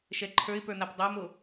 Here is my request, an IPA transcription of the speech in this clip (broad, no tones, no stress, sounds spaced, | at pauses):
ʃ ɛ ǃʰ ə˞ ɪ̯ p ə˞ n̪ a p dˤ a m o